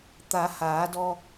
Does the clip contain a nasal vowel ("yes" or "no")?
no